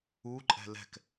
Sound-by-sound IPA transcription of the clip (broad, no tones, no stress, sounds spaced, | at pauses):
u ǃʼ ɛ̤ l ɛ̤ k